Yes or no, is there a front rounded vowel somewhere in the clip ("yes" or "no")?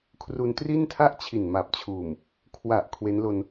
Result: no